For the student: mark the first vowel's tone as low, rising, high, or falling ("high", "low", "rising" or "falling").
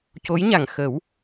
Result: rising